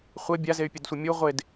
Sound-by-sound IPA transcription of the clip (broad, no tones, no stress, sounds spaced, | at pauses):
χʷ ɘ bʲ a z e y̯ pʲ ɘ d sʷ ɘ mʲ u ʁʷ e d